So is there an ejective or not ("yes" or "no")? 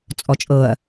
yes